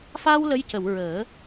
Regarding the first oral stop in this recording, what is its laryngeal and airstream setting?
plain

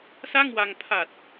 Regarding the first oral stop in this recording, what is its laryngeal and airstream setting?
aspirated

